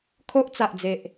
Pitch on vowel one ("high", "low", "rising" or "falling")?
high